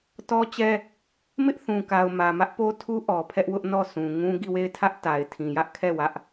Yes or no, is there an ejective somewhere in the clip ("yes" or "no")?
no